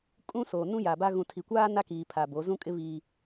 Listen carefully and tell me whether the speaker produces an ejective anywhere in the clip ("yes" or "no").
yes